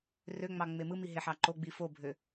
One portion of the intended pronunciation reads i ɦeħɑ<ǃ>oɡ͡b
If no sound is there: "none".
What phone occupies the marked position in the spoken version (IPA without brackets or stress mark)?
ǃ